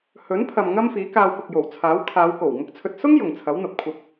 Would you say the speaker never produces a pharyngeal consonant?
yes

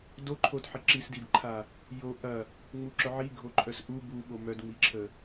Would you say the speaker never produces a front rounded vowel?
no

